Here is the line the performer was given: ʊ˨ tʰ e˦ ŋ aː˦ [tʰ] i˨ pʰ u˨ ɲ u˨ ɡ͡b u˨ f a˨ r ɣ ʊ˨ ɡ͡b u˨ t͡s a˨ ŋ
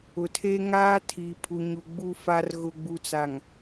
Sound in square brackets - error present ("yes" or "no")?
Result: no